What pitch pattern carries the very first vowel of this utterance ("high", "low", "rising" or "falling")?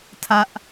high